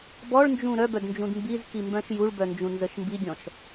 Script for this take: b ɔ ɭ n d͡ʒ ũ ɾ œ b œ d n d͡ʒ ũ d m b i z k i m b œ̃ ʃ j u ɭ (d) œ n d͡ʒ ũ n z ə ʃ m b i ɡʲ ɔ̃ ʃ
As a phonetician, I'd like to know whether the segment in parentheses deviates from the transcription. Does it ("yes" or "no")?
yes